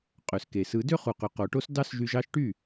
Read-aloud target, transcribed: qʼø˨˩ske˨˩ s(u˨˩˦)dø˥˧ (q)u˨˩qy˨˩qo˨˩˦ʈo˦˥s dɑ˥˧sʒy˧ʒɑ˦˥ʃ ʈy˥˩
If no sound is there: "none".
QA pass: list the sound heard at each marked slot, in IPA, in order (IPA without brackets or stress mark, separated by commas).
ɯ˨˩˦, χ